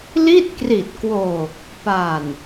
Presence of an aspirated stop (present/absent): absent